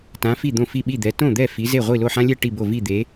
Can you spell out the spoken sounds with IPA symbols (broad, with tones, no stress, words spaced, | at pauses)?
tã˨˦fi˥˩ d̪õ˥˩fi˥˩ɓi˥˩d̪ɛ˨˦ tõ˥˩d̪ɛ˥˩ fi˨˦ze˥˩ ʁʷi˥˩lo˥˩ħã˦lʲɛ˥˩ ʈi˥˩bo˥˩ vi˥˩ d̪e˨˦